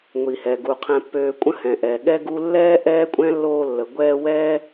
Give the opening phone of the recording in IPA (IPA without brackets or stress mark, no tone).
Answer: ŋʷ